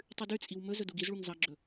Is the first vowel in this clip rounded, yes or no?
yes